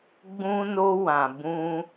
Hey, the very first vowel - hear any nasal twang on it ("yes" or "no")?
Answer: yes